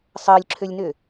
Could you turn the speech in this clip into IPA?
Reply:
sˤ əː lʲ ǁʰ ø lʲ n ø

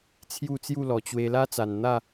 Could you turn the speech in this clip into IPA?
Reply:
t͡sʰ j u˥˧ t͡s j u˥˧ l ɔ˨˩ t͡ɕ w e˧ l a˦ t͡s a˨˩ n n̪ a˥˧

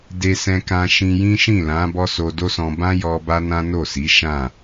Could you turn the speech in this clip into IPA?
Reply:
d e˧ s ɛ̃˧ k ã˧ ʃ ĩ˧ j ĩ˦ ʃ ĩ˦˨ l ã˨˦ b ɔ˦ s o˧ d o˦ s ɔ̃˧ b ã˦ j ɔ˧ b a˦ n ã˦ n o˦˨ s i˨˦ ʃ ã˦˨

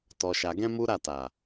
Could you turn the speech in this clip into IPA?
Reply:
t ɔ˧ ʃ a˧ ɡ ɛ̃˦ m u˦ ɾ a˦˨ t a˨

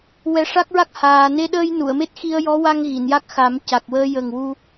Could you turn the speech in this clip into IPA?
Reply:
w ɛ˧˥ ʂ a˦˥ k̚ ɹ a˦˥ k̚ h aː˧ n e˧ ɗ əː˧ j n u˨˩˨ ə̯ m e˦˥ t̚ x i˧ ə̯ j ɔ˧˥ w a˧ ŋ ɣ i˨˩˨ n j a˦˥ k̚ x a˨˩˦ m c a˨˩ k̚ w əː˧ j ə˨˩ ŋ w u˧

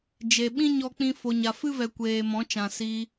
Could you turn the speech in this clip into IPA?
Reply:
d͡ʒ e˨ ɓ ĩ˦ ɲ ɔ˦ k͡p ĩ˦ f o˧ ɲ a˧ f ɨ˦ v ɛ˨ kʷ eː˨ m ɔ̃˨˦ t͡ʃ ã˨ s iː˧

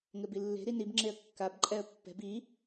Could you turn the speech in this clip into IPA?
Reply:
ŋ ɘ b i lː e̤ ɾ i n i b ŋ͡ǁ e ə̯ kː a b ǃʼ ɛ ə̯ pː ɛ̤ b i

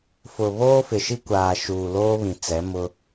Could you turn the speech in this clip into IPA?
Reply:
f ʊ˨ β oː˦ f ɪ˨ ʃ i˦ kʷ aː˨ ʃ uː˨ l oː˦ β ĩ˨ t͡s ɛ˨˦ m ʊ˦

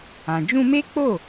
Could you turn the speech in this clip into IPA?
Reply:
ã˨ d͡ʒ ũ˧ m e˦ k͡p o˦˨

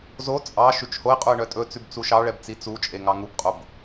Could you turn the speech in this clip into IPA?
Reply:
z o t͡sʼ ɑ ʃ ʉ t͡ʃ h o ɪ̯ qʼ u ə̯ ɳ œ tʼ ɵ t͡s ʉ b t͡s u ʃ ɑ ɭ ɛ b t͡s i t͡s u t͡ʃʼ e ŋ ɑ ŋ u b qʼ o b

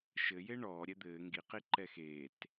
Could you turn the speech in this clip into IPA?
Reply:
ʃ ɘ j e ɳ ɔː ɾʲ ɛ d̪ ɘː ŋ ɡ i q i ǃ ɛ x eː t

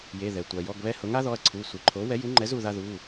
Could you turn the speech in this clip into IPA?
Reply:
j e˩˧˩ ð ɛ˩ tʷ a˩ j ɔ˩˧˩ ɡ β ɛ˧ h ʊ˩˥ ŋ a˩˥ ð ɔ˩˧˩ ɐ̯ ǀʰ u˩˧˩ sʷ i˩ ǃʰ o˩˥ w ɛ˩˥ j u˩˥ ŋ͡ǃ ɛ˩˥ z u˩ ð a˧ ð u˩˧˩

